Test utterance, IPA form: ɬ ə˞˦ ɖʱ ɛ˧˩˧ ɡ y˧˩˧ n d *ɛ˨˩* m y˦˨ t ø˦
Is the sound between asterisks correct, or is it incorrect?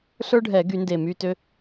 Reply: incorrect